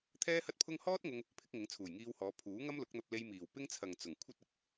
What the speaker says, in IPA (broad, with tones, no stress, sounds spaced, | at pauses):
t̪ʰ ɛː˥ h ɐ˥ t̚ pʰ ʊ˥ ŋ h ɔː˥ t̚ ŋ ʊ˧ ŋ | pʰ ɪ˨˥ k̚ ŋ ɪ˨˥ ŋ t͡sʰ uː˨˩ j ŋ iː˧ w h ɔː˨˧ pʰ uː˨˥ ŋ ɐ˥ m l ʊ˨˥ k̚ n̪ ɐ˧ p̚ l e˧ j m iː˨˩ w p ɪ˥ ŋ t͡sʰ ɐ˨ ŋ t͡s ʊ˨˩ ŋ kʷʰ ɐ˥ t̚ ɪ˨˥ k̚